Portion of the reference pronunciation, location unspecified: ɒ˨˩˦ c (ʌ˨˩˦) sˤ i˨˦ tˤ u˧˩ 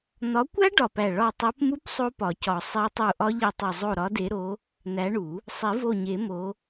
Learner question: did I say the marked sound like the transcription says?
no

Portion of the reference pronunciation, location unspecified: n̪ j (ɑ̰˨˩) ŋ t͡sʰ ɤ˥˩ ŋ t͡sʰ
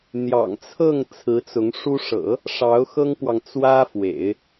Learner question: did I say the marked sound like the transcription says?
yes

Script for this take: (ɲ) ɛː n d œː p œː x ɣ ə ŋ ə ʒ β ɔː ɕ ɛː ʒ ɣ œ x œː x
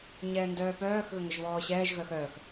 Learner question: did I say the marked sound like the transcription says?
yes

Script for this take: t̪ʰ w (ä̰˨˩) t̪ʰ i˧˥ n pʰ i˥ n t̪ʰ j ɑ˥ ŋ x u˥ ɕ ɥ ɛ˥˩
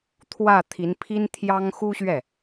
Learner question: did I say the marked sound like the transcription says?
no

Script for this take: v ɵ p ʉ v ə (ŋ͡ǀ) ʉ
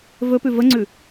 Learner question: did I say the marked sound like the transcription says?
yes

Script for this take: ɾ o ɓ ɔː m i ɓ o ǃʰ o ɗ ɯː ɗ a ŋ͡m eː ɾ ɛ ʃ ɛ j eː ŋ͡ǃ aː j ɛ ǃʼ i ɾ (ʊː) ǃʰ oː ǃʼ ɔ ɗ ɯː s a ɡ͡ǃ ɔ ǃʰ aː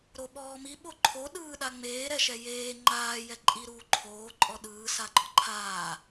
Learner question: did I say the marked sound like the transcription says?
no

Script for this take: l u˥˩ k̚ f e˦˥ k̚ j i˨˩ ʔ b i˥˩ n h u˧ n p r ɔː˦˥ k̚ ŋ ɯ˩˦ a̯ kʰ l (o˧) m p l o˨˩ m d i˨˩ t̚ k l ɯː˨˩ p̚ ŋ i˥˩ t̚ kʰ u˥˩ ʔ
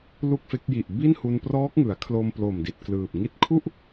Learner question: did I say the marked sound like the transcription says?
yes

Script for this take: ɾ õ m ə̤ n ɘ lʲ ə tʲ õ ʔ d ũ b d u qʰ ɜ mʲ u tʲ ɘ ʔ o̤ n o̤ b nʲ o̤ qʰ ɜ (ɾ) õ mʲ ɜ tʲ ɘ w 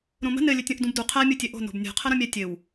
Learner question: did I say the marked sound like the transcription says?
yes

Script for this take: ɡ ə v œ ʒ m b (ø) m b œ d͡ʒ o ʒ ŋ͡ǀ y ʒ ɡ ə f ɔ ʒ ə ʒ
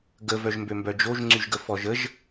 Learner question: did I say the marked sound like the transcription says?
yes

